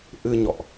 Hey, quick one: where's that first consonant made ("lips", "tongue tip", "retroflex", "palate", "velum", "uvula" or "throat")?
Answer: throat